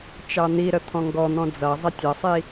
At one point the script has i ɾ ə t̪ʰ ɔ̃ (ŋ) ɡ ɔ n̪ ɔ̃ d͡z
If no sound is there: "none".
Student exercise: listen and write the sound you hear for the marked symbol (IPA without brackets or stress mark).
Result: ŋ